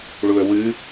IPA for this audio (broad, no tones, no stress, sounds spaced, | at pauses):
ɭ u ə̯ w ɨ